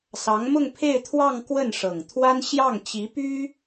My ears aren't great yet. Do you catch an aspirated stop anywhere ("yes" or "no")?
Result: yes